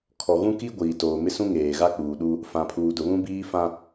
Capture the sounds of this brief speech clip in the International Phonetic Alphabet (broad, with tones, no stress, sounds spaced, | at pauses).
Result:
kʰ ɔ˨ ɣ ũ˦ k i˦ ɡʷ iː˨ t oː˨ m ɪ˦ s ũ˦ ŋ eː˨ ɣ a˦ k͡p uː˨ ɗ u˦ | f ã˨ pʰ uː˨ d ʊ˨ β ũ˦ b iː˦ f ã˦